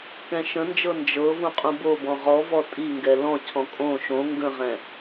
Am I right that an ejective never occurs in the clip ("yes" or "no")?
no